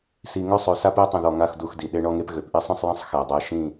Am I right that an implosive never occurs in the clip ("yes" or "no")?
no